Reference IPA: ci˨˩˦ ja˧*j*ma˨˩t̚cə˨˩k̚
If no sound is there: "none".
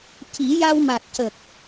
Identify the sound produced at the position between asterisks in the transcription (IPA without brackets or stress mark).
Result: w